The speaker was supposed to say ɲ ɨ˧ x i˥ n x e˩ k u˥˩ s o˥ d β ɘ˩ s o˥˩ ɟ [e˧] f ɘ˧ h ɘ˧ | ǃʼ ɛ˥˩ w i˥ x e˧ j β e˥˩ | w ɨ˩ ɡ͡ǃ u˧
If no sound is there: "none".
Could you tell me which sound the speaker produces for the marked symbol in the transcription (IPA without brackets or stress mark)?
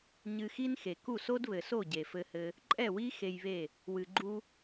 e˩